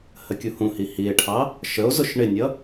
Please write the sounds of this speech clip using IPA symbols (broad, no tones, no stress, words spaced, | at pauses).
həkʲuhũhi hie̯ʈʰɑ | ʃəo̯zʊʃ ɳɪnʲʌ